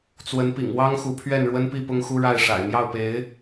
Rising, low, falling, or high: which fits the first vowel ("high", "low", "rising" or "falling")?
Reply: rising